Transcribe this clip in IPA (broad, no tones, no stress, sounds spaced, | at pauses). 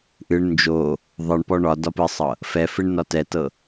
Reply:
ʔ ɨ ɳ n d͡ʒ o | ðˤ ɤ ɳ p ɔ ɳ ɒ d ɒ p ɨ sˤ ɤ | f ɛ f ɨ ɳ n ɒ t ɛ t ɤ